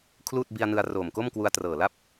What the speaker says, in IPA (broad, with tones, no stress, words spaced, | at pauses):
kʰluː˥˩t̚bi˧a̯nɯ˧a̯ roː˨˩mko˥˩mkwu˧a̯ trɤː˨˩la˥˩p̚